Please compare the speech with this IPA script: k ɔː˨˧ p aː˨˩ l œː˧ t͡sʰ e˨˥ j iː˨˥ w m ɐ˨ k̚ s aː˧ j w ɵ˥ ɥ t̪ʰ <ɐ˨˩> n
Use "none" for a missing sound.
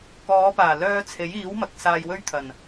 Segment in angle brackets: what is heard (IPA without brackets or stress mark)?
ɐ˨˩